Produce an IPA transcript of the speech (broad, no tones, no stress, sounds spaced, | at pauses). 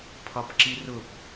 pʰ ɒ p ǁ i r ʊ p